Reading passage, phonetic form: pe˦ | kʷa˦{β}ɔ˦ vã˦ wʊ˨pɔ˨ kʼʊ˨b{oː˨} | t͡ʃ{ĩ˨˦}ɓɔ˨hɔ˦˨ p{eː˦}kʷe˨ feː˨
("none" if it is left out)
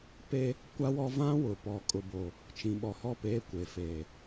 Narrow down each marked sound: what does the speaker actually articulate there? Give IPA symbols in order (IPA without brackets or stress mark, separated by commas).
w, o˨, ĩ˨, eː˦